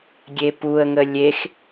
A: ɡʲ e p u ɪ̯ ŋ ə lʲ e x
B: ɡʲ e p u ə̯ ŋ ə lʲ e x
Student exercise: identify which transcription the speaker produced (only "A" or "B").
B